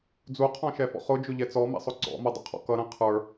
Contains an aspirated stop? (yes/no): yes